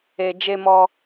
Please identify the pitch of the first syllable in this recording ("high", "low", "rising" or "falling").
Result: low